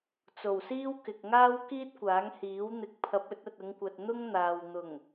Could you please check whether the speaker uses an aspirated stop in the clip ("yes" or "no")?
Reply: yes